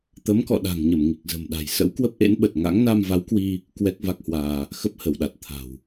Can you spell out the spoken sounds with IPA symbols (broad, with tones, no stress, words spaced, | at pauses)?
t̪ə˨˦mkɔ̰˧˨ ɗa̤˨˩ŋɲə˧˩m ŋi˨˩k̚zə̤˨˩mɗa̤˨˩j sə̰˧˥wkwə˦˥p̚ʔḛ˧˥nɓə˨˩t̚ ŋa̰˧˥ŋ na˧mva˨˦wkwi˧ | kwɛ˦˥k̚va˦˥k̚hwaː˧ | xə˦˥p̚hə˧˩wɗa˨˩t̚ t̪ʰa̤˨˩w